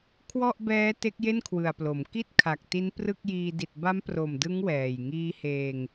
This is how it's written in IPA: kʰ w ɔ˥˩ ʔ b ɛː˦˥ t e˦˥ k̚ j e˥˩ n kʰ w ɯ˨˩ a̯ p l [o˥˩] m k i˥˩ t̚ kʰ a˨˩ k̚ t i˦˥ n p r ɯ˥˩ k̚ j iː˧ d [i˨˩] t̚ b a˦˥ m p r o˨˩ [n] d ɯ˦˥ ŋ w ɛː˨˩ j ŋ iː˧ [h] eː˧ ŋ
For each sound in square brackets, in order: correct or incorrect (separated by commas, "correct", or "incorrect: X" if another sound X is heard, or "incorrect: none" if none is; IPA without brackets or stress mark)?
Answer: incorrect: o˩˦, correct, incorrect: m, correct